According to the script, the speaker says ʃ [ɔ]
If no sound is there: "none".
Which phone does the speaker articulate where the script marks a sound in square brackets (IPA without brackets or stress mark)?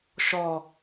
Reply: ɔ